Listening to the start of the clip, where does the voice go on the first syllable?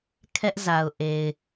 high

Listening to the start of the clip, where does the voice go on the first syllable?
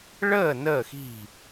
falling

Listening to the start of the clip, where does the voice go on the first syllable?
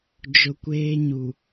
low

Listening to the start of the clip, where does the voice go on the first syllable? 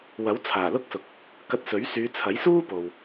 rising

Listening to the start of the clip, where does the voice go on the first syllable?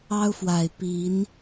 high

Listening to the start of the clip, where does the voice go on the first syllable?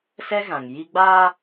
high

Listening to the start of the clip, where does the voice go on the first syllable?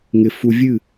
low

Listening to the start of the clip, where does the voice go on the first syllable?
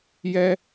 high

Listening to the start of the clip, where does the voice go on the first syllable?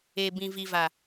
low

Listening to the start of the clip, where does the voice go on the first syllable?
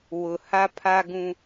low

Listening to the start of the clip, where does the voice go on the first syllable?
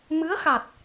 rising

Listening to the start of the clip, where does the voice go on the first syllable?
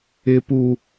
high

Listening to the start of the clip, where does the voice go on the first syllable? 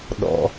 high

